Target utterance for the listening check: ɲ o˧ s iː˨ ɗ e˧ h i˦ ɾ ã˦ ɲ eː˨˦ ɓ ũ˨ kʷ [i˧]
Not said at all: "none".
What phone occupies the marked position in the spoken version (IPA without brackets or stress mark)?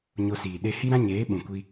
i˧